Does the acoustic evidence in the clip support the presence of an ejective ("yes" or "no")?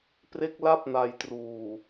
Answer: no